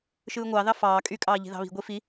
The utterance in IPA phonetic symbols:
ʃ ɯː ŋʷ ɑ ð ɑ f ɑː kʼ y kʼ ɑː ʎ i̤ ð ɑ̤ β i̤ ɡʷ i f i

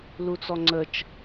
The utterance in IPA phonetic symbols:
l u t͡s ɔ ŋ͡ǀ ə t͡ʃ

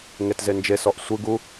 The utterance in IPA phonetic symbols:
ŋ e t z e n d͡ʒ e s ɔ ʔ sʷ ɯ ɡ u

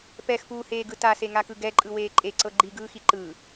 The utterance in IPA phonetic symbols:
p ɛ x p uː h eː ɡ ɯ t a s e ŋ a k ɯ ɡ ɛ ǃʼ ɯ w eː ǃʼ e ǀ ɤ ɡ͡ǃ i ɡ ɯː x i ǃ ɯː

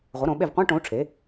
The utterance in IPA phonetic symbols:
ʁʷ ə˩˥ ɾ õ˩˧ ɓ e˦˨ v qʷ ã˧˥˧ ʈ õ˩˥ u̯ ʈ͡ʂʰ e˩˥

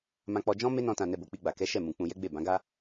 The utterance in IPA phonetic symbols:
m ã˧ k͡p ɔ˧ d͡ʒ ɔ̃˦ m e˦ n ɔ̃˧ t ã˨ n ɛ˧ b o˨ k͡p i˧ ɡ͡b a˨ k ɛ˨˦ ʃ ɛ˦˨ m ũ˨ k͡p ũ˧ j ɛ˦ ɡ͡b e˦˨ b ã˨˦ ɡ a˦

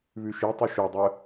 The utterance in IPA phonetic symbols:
β ʉ ʃ i tˤ i ʃ œ dˤ œ

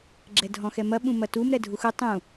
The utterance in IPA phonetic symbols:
ɡ͡ǁ ɛ dʱ ɔ̃ x ɛ m ɐ ɓ ũ m ɐ t u m ɾ ɛ dʱ u x u tˤ ũ

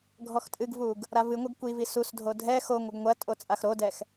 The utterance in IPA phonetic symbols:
ɡʱ ɔ x tʼ ɨ ɡ v u ɡ | ɾ a v ɨ ŋʷ ɐ ɡ kʷ i v i s u s dʱ o dʱ ɛ x o ŋʷ ɐ ɡ ŋʷ ɐ tʼ o t͡sʼ a x ɾ o d ɛ x

